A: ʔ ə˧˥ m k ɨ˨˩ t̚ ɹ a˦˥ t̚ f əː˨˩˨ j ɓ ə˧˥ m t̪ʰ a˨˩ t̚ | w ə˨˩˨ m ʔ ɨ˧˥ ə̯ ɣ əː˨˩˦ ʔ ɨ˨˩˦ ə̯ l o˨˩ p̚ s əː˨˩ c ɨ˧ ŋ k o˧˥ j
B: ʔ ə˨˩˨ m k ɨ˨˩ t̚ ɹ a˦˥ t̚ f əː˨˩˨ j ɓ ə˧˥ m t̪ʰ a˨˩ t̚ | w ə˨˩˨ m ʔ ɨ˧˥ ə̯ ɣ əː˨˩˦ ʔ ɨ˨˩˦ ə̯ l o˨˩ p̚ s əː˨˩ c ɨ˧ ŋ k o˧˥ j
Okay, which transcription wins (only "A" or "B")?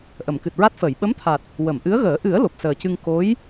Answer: B